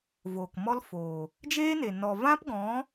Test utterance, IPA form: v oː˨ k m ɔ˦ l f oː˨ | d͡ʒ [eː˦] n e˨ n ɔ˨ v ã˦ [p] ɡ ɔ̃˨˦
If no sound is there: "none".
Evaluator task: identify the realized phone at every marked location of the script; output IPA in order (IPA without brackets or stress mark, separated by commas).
eː˦, p